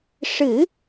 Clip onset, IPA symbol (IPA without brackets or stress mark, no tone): ʂ